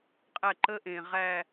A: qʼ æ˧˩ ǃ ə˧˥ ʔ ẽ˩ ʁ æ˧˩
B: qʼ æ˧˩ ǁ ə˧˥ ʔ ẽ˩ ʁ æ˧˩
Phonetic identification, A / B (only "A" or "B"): A